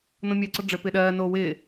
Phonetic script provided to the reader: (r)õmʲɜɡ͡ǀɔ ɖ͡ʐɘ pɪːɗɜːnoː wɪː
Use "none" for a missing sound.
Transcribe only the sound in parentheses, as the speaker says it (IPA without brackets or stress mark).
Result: n